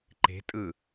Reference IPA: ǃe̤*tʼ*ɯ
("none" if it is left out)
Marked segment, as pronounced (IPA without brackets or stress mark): tʼ